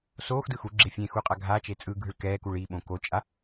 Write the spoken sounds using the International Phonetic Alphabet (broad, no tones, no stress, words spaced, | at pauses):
soːxdɯ xu ɡ͡ǁefʲẽxu qʼaɡʱat͡ʃe t͡sʼɯɡʱɯɭ kɛːkuɭ iɓõ kot͡ʃʼa